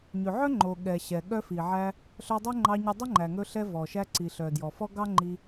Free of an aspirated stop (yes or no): yes